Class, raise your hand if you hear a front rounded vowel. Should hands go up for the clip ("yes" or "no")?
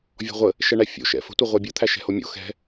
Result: no